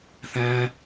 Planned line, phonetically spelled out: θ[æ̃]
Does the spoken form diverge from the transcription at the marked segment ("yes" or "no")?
no